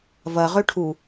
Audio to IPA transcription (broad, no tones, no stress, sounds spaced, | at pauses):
v ɐ ʁ ø ʈʰ u